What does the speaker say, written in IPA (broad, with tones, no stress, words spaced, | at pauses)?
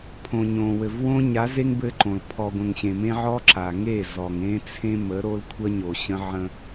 pʰõ˨ɲõ˨wɘ˨vwõ˦ ɲa˨˦ze˦ŋ bɘ˦ǃõ˨l pʰɔ˨ɡʷə̃˨ŋɕẽ˨ mẽ˦ʕɔ˦ǁa˨ ŋe˦˨ zɔ˨ŋẽ˦ t͡sʰẽ˦mə˨˦ɾo˦l kʷʰə˦ɲo˨ɕə̃˦ ʕə̃˦